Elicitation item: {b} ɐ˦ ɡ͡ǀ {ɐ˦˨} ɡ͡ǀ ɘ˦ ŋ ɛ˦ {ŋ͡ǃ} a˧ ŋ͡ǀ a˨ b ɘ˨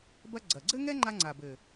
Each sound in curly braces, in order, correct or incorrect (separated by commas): correct, incorrect, correct